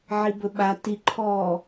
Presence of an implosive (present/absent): present